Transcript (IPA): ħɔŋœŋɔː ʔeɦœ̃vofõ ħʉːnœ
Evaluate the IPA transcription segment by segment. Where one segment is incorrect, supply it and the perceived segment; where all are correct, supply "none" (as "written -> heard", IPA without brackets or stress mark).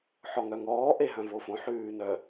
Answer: none